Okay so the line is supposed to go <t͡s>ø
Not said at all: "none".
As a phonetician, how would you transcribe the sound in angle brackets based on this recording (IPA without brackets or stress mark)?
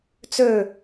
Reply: t͡s